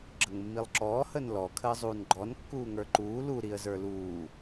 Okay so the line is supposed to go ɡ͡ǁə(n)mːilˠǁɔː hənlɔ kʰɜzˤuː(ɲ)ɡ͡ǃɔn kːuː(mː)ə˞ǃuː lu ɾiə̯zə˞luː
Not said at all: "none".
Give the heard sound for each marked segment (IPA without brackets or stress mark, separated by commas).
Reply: ŋ, n, ŋ